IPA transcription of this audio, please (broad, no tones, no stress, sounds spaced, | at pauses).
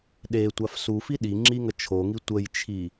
ɗ e tʷ a f s u f i ɗ i ŋ͡ǁ i ŋ ə t͡ʃʰ o ŋ i tʷ ə j t͡ʃʰ i